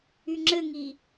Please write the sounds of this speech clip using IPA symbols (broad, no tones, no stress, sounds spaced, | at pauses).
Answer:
y ŋ͡ǁ ɘ ŋ i